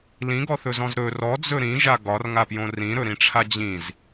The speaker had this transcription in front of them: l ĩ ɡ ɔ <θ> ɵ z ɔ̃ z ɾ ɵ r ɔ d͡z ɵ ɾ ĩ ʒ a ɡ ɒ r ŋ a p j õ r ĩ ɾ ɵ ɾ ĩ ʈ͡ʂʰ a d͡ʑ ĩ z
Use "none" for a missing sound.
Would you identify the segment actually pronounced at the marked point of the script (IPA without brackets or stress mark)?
θ